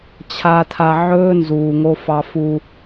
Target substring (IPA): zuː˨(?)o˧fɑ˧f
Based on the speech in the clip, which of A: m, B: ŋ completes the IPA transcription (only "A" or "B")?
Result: B